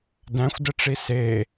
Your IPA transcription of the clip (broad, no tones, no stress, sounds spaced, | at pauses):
d æ̃ xʷ d ɘ ʈ͡ʂ i s e